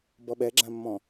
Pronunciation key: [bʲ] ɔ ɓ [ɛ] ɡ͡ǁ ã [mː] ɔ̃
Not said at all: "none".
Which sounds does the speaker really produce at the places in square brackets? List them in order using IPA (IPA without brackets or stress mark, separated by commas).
b, ɛ, mː